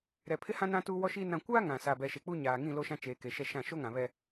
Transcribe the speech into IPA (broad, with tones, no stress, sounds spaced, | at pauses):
ɾ ɛ˨ pʰ ɪ˦ h ã˦ n ã˦ t uː˦ w ɔ˦ ʃ iː˦ n ã˨ kʷ aː˦ ŋ ã˨ s aː˨ b ɛ˨ ʃ e˨ k͡p u˦ ɲ aː˨ ŋ ĩ˦˨ l o˦ ʃ ã˦ t͡ʃ eː˨ k e˨ ʃ ɛ˨ ʃ ã˦˨ ʃ o˦ ŋ ã˨ β ɛ˦